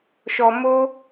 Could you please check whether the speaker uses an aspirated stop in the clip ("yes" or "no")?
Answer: no